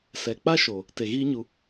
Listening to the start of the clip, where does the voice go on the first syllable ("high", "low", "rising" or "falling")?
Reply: low